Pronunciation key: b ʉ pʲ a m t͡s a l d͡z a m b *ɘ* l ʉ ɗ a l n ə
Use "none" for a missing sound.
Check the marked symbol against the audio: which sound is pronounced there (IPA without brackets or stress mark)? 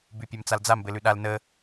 ɘ